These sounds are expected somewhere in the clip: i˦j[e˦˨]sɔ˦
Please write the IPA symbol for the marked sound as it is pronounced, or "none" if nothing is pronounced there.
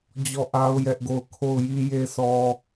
e˦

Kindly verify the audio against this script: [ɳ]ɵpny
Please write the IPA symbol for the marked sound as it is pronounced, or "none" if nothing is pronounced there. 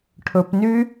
ʈʰ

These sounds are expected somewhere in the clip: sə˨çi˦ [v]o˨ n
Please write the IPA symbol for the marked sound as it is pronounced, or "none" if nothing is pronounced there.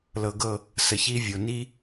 vʲ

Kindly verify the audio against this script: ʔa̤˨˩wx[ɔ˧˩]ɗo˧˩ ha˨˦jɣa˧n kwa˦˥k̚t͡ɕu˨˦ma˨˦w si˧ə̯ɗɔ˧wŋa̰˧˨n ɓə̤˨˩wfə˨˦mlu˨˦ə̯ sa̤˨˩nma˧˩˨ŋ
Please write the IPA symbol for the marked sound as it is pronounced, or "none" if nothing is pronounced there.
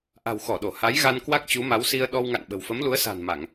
ɔ˧˩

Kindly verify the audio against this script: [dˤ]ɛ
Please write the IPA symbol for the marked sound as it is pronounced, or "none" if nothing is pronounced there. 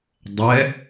dˤ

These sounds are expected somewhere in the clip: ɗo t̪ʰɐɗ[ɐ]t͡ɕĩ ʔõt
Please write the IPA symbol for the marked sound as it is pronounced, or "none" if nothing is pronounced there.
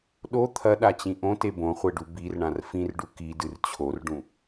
a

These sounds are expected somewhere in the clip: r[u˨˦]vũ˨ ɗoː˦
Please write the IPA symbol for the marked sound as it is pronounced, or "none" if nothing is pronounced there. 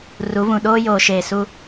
u˨˦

